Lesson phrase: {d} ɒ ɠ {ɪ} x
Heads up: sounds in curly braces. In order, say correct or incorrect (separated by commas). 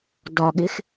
correct, correct